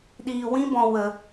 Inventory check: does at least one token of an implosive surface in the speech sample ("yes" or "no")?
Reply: yes